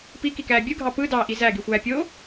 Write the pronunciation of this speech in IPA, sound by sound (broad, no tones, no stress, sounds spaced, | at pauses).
p i k i k æː bʲ ɯ ɡʱ ɑ p ɯ d ɑː ʔ i z æ ɡ i xʷ æː pʲ oː